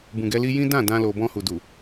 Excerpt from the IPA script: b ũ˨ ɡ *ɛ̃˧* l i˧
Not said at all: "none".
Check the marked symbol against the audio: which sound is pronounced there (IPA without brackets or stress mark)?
ɛ˧